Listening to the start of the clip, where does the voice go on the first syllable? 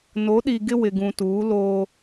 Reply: rising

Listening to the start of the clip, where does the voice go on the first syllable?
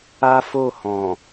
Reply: high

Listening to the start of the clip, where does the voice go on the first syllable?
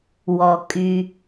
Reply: low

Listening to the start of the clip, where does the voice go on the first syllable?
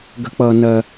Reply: high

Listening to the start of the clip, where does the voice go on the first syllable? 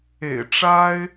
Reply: low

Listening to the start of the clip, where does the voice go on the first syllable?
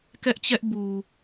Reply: high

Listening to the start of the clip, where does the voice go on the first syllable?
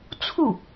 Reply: falling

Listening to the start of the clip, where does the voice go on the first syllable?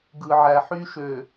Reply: low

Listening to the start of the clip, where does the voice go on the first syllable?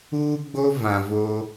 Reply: high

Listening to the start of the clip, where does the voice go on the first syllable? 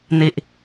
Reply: low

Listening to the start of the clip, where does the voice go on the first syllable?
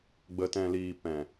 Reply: low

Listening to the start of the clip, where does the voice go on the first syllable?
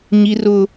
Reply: high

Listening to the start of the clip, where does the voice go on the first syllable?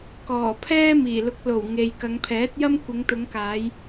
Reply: low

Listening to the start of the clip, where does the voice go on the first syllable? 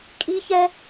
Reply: high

